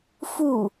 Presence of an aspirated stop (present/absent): absent